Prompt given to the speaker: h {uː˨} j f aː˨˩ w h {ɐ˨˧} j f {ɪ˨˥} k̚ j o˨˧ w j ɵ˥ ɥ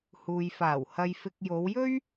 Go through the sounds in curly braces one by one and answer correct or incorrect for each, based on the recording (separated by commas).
correct, incorrect, incorrect